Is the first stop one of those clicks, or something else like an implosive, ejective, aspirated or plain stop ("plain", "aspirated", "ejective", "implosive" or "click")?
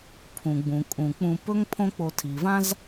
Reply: aspirated